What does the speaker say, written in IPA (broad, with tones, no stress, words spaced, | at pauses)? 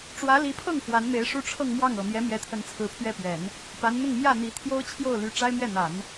ʈ͡ʂwä˧˥li˧˥pʰɤ˥˩ŋ fwa˧˥nme˧˥ɪ̯ʂu˥ ʈ͡ʂʰɤ˥˧ŋmwɑ˥˩ŋɤ˨˩ mjɛ˧˥mjɛ˧˥t̪ʰə˧˥n t͡sʰɹ̩˧˥pʰɥɛ˥˩pɥɛ˨˩˦n | pa˧˥nn̪ʊ˥˧ŋ mjä˥˩n̪i˧˥ t̪ʰjo˥ʊ̯t͡ɕʰjo˥˩ʊ̯ ly˧˥ ʈ͡ʂa˥ɪ̯mɥɛ˥˩n̪a˨˩˦n